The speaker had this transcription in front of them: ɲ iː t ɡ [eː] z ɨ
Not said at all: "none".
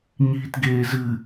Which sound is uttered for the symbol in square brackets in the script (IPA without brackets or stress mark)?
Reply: eː